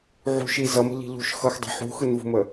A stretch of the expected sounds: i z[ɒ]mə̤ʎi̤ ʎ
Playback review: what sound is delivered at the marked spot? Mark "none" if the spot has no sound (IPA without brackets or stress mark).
ʌ